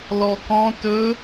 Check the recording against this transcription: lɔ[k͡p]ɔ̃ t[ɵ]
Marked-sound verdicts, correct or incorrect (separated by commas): incorrect, correct